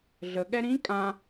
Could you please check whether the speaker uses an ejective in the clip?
yes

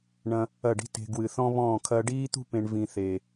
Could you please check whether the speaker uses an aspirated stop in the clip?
yes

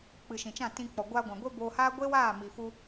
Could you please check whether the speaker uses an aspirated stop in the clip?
no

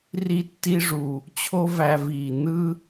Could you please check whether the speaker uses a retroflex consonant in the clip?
yes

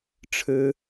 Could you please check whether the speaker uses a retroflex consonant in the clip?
yes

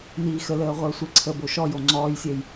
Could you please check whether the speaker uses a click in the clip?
yes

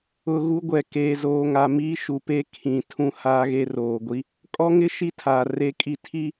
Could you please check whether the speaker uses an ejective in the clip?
yes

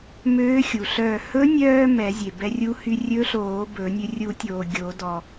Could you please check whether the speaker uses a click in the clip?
no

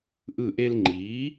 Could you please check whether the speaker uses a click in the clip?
yes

